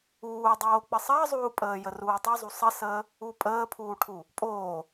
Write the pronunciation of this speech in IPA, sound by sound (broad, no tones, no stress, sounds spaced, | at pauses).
uː dˤ oː k͡p ə sˤ əː zˤ uː pʼ əː j ə r uː tˤ u zˤ u sˤ ə s əː | u pʼ əː pʰ uː ʈʰ u | pʼ oː